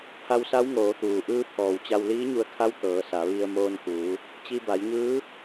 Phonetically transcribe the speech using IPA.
pʰa˧wsa˧˥wŋoː˩˧t̪uː˩ ʔɯː˧˥pʰɔː˩wt͡ɕa˧w liː˧˥ɲu˧ə̯kʰa˧˥w t̪ɤː˩˧sa˩˧ʋi˧ə̯ moː˧nkuː˩˧ | t͡ɕi˧ba˩˧jɲɯː˧˥

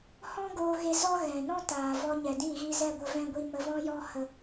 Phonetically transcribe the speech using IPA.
hɔ̃˦ɡoː˧ɣe˧ zɔ˦ɣɛ̃˨ nɔ̃˦taː˨ vɔ˧ɲɛ˨dĩ˦˨ɣi˧ zɛ˦˨ɡʷə˧vɛ̃˧ ɡʷi˨mə˨vɔ̃˧jɔ˧ hə˧

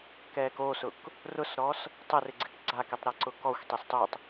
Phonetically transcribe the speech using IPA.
kɛːkosʊk | rʊsɾɔs | tˤɪrɪ ɡ͡ǀɪkɡ͡ǀakitˤ ɾɛǀʊkɔxʷtˤes tˤutˤ

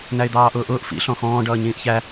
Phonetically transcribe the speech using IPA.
næɪ̯d̪ɑːʔʊːʔʊːʔ fḭ ɬɔ̃xɔ̃ː ɖʌːɲĩːʔçæ

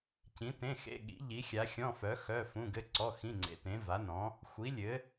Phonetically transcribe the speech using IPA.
cĩ˨˥tẽ˧˥˧xḛ˧˥˧ ɠḭ˨˥ʎi˨˥xʲa˨˥xʲɔ̃˧˥˧ fœ˨˥ xœ˧˥˧fũ˧˥˧ɡɘ˧˥˧ ǀɔ˧˥˧xĩ˧˥˧ ŋ͡ǀḛ˨˥tẽ˨˥va˨˥ nɔ̃˨˥ | xʷi˨˥lʲɘ˨˥

